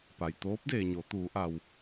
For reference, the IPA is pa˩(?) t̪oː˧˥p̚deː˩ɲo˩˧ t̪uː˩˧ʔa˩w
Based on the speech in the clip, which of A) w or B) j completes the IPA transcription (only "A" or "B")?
B